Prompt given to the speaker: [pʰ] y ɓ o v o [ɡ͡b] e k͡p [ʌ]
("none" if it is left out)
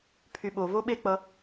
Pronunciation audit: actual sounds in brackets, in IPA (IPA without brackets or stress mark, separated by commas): pʰ, ɓ, ʌ